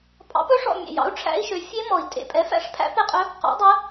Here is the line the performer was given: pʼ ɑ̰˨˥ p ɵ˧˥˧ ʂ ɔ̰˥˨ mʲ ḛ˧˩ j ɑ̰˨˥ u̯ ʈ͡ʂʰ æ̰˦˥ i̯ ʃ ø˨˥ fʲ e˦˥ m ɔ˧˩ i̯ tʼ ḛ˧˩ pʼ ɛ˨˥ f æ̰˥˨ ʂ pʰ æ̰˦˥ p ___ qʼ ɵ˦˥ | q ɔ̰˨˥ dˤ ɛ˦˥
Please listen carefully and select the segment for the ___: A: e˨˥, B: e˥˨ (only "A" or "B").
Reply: B